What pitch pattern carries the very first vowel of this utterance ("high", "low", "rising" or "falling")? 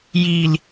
low